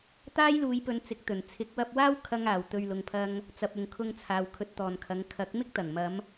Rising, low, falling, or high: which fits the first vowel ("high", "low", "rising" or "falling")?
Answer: high